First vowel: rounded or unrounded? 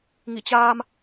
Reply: unrounded